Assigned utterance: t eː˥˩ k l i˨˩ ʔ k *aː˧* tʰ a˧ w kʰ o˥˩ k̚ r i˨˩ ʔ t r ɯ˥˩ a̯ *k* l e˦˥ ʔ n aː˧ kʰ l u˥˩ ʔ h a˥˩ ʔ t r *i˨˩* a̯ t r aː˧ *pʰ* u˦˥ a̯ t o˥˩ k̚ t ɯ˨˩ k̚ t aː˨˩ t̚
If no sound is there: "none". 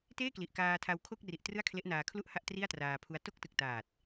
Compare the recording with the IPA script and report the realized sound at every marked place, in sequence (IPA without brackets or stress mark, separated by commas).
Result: aː˧, kʰ, i˥˩, pʰ